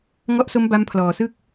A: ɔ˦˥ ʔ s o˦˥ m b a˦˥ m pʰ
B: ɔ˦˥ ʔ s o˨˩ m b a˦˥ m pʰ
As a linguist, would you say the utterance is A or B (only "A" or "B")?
A